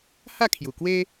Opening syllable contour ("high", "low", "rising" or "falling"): falling